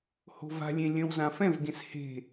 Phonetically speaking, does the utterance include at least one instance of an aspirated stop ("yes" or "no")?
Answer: no